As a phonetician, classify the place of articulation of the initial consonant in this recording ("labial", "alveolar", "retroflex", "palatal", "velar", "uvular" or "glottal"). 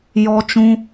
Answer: palatal